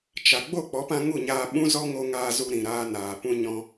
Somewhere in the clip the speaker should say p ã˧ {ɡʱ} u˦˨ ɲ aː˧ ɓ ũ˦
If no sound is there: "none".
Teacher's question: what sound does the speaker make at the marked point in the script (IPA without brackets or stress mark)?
ŋ